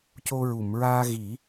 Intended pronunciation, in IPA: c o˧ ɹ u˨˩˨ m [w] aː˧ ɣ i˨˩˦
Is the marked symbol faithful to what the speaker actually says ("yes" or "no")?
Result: no